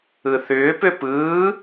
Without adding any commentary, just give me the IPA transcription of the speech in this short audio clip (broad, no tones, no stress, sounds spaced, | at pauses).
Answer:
ɯ θ ʏː p ʏ p ɯː